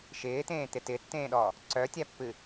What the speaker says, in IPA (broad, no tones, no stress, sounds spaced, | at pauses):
ʃ ɪː t̪ ẽː t̪ ɪ t ɪ tː ẽː ɗ ɔ | ǀ œ tʲ a pː ɨ